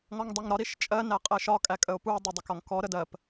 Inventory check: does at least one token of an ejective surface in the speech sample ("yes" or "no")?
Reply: yes